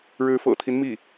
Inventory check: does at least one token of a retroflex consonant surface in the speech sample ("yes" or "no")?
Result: yes